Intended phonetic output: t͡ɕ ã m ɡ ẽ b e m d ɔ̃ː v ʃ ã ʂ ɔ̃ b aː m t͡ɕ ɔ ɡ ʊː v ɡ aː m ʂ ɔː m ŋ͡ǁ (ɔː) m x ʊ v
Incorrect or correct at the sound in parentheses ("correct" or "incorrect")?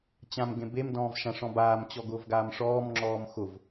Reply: correct